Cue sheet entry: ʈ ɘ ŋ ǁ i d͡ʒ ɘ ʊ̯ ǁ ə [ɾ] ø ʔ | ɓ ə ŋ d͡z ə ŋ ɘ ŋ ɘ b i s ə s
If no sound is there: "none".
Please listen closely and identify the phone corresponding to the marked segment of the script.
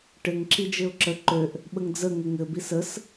ǃ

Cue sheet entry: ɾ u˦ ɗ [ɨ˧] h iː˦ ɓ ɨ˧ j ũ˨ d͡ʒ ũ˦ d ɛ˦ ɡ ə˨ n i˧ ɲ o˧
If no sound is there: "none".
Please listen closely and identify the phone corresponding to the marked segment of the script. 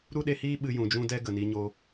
e˧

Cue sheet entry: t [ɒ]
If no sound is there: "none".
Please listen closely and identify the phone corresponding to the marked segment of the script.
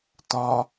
ɒ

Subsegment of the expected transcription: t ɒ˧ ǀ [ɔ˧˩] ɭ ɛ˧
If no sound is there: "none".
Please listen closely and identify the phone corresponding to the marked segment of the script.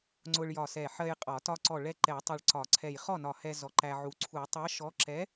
ɔ˧˩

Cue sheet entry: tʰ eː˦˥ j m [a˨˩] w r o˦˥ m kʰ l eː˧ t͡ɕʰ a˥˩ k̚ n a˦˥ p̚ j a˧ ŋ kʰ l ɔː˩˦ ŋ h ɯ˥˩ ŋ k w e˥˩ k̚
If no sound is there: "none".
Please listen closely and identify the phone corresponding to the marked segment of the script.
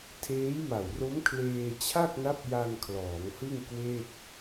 a˨˩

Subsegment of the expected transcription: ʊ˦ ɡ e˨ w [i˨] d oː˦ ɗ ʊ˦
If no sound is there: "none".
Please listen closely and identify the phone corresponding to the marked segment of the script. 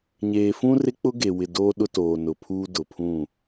ɪ˨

